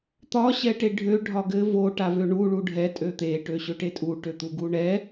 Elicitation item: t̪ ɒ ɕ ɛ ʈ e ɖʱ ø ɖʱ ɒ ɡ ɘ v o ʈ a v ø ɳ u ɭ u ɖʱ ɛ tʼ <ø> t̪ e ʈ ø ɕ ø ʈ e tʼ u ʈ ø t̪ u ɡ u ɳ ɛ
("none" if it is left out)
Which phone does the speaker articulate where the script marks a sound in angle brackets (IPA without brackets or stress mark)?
ø